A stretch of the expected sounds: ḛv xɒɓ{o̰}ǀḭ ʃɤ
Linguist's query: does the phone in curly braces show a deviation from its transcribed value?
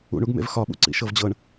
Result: yes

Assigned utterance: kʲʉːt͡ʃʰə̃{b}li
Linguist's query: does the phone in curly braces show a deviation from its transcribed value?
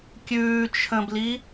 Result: no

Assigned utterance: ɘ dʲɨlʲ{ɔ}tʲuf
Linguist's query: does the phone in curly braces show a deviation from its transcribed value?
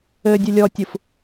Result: no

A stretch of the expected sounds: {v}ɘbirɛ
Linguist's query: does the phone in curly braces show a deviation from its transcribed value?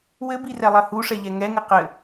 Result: yes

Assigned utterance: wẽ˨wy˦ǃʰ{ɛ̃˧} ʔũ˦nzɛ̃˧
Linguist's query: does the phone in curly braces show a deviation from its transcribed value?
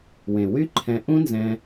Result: no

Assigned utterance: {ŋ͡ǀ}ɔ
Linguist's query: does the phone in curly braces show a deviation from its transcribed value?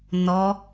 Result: yes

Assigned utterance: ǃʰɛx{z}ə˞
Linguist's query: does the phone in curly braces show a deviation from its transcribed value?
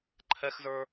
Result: no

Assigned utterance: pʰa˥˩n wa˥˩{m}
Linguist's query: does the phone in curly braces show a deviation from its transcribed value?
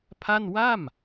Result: no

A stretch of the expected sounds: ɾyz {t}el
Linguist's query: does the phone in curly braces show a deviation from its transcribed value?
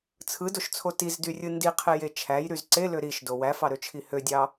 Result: yes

